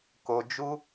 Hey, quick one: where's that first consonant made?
velum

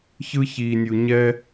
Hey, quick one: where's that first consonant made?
palate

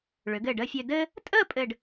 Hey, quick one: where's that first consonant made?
retroflex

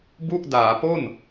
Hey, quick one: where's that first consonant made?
lips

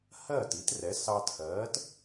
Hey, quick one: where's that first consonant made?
throat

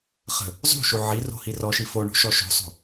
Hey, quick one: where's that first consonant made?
uvula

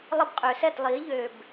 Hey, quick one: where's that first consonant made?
tongue tip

